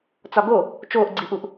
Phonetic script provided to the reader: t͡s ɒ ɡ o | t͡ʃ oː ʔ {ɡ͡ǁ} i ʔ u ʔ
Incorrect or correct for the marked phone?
incorrect: ɡ͡ǀ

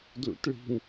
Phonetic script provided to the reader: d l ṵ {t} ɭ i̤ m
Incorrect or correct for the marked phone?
correct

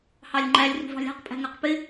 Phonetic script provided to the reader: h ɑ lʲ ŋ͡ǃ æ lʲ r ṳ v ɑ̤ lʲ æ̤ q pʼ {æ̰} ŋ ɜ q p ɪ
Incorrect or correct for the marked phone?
incorrect: æ̤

